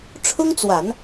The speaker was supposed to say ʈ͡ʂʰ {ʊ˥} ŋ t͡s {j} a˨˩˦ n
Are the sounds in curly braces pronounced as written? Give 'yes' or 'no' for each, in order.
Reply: yes, no

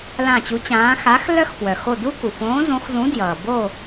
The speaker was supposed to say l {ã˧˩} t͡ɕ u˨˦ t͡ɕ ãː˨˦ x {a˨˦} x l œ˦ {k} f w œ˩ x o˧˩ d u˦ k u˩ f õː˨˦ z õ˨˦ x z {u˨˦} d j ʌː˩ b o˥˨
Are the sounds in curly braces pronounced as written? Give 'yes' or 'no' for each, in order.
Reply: yes, yes, no, no

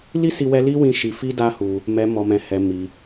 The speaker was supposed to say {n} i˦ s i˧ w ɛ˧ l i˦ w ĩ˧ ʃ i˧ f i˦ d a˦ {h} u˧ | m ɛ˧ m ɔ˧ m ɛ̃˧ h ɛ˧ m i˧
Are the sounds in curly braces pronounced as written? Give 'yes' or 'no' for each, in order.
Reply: no, yes

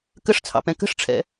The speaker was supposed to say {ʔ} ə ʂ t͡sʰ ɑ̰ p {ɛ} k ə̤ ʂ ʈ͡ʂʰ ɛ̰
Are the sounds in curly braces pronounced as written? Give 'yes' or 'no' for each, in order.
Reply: no, no

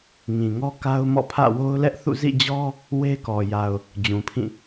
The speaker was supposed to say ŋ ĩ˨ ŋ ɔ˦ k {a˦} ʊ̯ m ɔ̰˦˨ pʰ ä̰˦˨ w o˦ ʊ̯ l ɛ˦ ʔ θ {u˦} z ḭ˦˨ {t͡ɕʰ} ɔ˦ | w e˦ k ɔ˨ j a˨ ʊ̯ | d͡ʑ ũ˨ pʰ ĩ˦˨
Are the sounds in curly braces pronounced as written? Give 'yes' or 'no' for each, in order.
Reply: yes, no, no

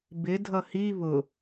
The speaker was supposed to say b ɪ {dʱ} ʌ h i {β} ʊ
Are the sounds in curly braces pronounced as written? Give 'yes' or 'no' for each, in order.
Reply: yes, yes

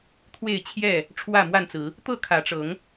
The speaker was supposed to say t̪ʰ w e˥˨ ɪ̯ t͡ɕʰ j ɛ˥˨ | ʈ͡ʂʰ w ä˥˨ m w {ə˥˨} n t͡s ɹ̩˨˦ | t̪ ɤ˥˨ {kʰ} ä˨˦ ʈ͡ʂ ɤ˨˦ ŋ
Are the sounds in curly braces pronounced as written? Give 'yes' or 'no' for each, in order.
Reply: no, yes

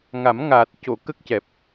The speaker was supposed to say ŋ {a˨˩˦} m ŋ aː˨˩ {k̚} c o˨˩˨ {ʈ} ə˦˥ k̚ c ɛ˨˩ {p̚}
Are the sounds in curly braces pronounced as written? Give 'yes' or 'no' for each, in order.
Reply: yes, no, no, yes

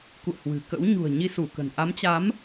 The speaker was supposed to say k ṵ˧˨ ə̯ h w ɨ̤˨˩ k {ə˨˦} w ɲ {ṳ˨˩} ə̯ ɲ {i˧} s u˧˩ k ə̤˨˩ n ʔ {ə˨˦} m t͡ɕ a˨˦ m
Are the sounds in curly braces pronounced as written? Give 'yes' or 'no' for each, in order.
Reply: no, yes, yes, no

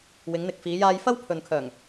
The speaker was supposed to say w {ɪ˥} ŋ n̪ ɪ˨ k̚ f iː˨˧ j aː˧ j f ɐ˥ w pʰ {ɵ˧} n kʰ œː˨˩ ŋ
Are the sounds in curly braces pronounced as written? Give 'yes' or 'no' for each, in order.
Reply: no, no

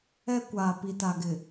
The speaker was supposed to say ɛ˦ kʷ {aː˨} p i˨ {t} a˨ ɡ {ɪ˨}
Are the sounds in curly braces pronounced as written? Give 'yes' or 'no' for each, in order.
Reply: yes, yes, yes

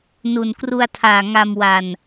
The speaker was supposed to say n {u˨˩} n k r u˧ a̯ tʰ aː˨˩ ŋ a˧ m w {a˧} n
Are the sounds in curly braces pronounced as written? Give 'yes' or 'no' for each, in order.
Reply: yes, yes

